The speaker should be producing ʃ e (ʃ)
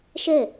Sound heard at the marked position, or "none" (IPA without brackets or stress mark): none